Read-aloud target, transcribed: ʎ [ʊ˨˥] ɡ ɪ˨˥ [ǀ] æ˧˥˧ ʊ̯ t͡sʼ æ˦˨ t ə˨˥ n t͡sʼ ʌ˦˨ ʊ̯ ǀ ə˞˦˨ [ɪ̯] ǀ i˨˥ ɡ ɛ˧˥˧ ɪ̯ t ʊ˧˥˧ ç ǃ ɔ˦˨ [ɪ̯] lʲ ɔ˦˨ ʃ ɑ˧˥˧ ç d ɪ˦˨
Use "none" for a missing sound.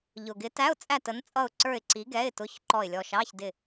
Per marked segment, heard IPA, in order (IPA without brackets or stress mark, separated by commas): ʊ˨˩, t, ɪ̯, ɪ̯